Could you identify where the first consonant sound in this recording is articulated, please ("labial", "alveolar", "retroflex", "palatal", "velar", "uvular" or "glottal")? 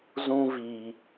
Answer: alveolar